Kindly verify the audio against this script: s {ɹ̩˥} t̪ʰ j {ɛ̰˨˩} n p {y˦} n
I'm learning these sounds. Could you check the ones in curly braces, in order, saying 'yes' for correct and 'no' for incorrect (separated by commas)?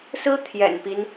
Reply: yes, yes, no